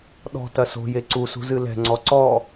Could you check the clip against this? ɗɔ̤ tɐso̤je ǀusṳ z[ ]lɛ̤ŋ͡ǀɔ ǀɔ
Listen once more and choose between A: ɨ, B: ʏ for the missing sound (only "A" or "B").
A